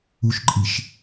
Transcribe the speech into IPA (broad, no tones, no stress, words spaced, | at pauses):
uʃǃʼiʃ